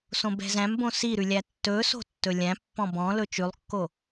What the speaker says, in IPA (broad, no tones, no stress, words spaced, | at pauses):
sõbɛ̤zæ̃mbõ siɾʉ lʲætːɵso̤ tːɵlʲæ̃pːɔ̃ bɔ̃ lɵt͡ʃʉlˠkːo